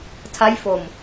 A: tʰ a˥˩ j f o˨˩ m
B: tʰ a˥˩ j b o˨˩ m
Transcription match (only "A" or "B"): A